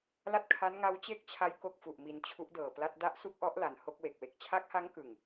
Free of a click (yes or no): yes